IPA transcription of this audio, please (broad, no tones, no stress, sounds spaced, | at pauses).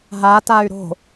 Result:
ɦ a t a y̯ ɾ o̤